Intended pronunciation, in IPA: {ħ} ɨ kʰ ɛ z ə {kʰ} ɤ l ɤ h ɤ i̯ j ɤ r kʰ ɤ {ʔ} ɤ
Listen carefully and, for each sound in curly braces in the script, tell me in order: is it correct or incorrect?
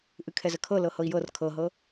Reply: incorrect: ʔ, correct, incorrect: ɦ

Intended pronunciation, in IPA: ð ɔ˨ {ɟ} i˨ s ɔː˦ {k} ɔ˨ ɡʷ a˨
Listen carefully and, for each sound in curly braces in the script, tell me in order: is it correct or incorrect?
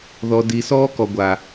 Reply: incorrect: d, correct

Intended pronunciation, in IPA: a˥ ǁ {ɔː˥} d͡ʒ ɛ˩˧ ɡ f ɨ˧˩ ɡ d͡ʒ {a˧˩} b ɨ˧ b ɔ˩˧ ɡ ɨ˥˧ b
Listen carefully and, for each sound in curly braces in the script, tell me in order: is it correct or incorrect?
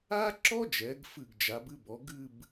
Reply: incorrect: ɔ˥, incorrect: a˩˧

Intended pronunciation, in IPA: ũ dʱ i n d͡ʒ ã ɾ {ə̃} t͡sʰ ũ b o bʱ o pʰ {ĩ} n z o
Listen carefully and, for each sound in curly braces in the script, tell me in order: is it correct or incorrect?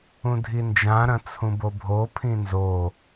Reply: incorrect: ɐ̃, correct

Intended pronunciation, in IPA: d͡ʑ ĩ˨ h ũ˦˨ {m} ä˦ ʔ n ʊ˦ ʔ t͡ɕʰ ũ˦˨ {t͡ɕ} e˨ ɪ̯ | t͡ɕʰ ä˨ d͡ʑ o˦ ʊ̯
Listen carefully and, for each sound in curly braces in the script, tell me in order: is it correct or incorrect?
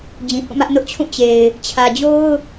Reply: correct, correct

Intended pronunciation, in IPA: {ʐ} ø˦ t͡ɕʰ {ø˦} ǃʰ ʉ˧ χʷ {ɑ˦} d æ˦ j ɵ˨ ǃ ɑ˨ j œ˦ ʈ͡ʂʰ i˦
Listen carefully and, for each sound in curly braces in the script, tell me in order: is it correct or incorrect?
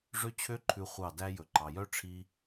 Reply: correct, correct, incorrect: ɑ˦˨

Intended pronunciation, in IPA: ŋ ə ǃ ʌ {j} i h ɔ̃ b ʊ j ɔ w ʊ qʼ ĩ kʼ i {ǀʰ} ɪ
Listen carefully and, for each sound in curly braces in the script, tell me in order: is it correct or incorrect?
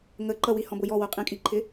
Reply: incorrect: w, incorrect: ǃʰ

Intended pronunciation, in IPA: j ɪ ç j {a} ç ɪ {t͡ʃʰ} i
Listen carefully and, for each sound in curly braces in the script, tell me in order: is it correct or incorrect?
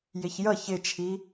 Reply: incorrect: ʌ, correct

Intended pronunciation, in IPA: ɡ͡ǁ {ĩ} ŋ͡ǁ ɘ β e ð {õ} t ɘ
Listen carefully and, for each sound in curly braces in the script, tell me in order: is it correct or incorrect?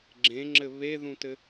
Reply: incorrect: ẽ, incorrect: ũ

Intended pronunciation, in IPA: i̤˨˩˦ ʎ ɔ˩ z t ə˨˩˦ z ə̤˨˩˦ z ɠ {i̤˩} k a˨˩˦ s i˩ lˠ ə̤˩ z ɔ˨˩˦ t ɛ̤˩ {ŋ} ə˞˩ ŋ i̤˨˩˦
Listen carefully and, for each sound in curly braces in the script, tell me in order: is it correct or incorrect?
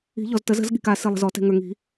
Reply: correct, correct

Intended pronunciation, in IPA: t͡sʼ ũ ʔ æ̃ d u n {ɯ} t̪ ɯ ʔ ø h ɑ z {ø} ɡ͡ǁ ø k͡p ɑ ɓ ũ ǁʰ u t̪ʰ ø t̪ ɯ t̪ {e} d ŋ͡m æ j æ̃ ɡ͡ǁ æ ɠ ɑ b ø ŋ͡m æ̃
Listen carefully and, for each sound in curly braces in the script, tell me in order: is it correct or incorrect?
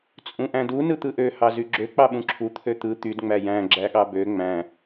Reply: correct, incorrect: y, incorrect: y

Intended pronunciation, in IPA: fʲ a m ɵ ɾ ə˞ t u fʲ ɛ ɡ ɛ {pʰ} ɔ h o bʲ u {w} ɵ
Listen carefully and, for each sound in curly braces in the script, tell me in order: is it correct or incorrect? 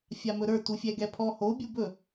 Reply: correct, incorrect: b

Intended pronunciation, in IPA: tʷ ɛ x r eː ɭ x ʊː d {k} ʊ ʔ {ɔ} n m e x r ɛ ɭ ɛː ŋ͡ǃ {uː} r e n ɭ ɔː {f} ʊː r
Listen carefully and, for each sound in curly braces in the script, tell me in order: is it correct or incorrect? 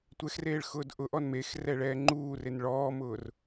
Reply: incorrect: ʔ, correct, correct, incorrect: m

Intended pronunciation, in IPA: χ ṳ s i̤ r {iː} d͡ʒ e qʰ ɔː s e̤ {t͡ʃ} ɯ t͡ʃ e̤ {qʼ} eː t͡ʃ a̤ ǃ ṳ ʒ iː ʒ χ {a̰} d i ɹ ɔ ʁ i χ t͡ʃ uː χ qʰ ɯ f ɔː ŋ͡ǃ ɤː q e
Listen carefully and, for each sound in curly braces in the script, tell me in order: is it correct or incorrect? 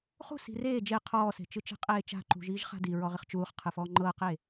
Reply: incorrect: eː, correct, correct, incorrect: a̤

